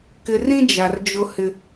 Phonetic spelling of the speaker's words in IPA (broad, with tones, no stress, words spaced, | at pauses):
kɪ˨rĩ˦ d͡ʒa˨rd͡ʒʊ˦hɪ˦